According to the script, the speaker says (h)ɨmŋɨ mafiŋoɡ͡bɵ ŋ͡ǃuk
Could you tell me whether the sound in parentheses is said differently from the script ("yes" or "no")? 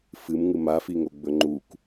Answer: yes